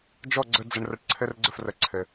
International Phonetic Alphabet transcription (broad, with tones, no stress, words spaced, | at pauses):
d͡ʒɔ˦˨ɡ͡ǀə˧ d͡zə˧ɳrə˧ʈǀʰɘ˦r ɡ͡ǀə˦˨frə˨ ǀʰɘ˨